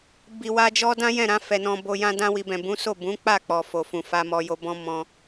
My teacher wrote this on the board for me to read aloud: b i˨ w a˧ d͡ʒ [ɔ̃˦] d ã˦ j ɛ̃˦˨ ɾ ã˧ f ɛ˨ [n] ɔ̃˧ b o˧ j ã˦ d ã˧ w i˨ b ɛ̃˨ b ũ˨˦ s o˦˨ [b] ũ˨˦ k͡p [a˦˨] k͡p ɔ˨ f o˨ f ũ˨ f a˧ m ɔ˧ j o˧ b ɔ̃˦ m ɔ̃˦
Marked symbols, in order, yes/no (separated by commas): no, yes, yes, yes